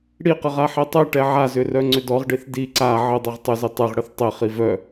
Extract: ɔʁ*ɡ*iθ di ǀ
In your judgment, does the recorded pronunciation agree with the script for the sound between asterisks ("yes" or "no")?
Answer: no